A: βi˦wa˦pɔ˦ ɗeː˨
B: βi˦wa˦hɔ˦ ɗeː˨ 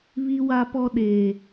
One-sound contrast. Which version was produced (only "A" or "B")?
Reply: A